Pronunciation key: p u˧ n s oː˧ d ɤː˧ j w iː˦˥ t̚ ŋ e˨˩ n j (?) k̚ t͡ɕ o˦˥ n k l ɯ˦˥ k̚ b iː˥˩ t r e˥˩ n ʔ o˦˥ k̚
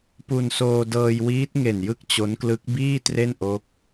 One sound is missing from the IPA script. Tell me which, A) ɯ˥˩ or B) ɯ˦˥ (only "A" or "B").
B